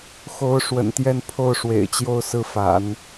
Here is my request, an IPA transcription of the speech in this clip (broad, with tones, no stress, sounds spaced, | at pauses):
x o˧˥ ʊ̯ ʂ w ə̰˨˩ n t̪ j ɛ˥˧ n pʰ o˥˩ ʊ̯ ʂ w ḛ˨˩ ɪ̯ t͡ɕ j o˥˧ ʊ̯ s ɹ̩˥˩ f a̰˨˩˦ n